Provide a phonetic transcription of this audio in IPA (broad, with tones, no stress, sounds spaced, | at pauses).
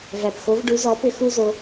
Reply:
v æ˩ p x o˩˥ v ɖ u˩˥ z ɔ˩˥ p ʏ˧ x u˥ z o˧